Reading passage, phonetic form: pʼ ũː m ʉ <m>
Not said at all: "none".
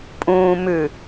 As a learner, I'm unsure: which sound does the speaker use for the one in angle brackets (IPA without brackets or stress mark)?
none